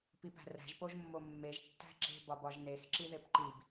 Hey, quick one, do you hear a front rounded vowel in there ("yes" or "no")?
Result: no